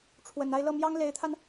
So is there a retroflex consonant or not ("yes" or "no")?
yes